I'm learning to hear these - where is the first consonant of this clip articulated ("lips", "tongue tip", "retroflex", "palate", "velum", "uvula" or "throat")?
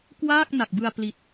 velum